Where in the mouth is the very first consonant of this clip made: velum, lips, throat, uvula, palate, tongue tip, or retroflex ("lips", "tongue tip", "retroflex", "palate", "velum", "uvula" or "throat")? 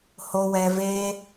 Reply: throat